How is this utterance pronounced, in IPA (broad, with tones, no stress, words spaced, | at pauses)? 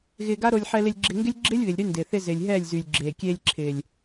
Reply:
ɣɪː˧ɡa˦ɾo˧lʲ ħɛ˧lɪ˧lʲɡ͡ǁɪ˧ŋɡɪ˦lʲ ɡ͡ǁɪː˦lʲβɪ˨lʲɾy˧ ndɪː˨θɪ˧ zɪː˨lʲɦɛː˦˨lʲzyː˨lʲ ɡ͡ǁeː˨kʲeː˧lʲǁʰɪː˨lʲ